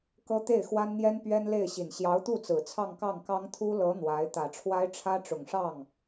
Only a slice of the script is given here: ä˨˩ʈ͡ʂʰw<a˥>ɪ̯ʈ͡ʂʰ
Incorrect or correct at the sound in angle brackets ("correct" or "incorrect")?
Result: correct